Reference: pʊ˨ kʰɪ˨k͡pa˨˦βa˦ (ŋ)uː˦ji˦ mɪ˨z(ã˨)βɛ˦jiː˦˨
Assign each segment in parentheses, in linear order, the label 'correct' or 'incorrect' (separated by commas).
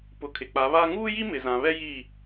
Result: correct, correct